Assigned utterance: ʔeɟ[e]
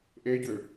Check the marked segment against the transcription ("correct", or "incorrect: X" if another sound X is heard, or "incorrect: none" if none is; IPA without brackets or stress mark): incorrect: ø